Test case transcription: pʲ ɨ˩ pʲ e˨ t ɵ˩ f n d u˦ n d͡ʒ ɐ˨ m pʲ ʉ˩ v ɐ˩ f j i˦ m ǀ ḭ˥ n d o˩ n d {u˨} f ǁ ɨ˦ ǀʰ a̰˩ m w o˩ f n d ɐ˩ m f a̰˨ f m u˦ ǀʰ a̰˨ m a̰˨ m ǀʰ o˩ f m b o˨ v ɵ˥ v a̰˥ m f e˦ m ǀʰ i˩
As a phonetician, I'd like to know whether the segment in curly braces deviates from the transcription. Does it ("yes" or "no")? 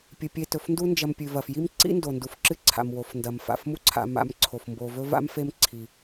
yes